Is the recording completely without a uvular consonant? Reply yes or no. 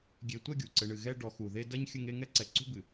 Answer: yes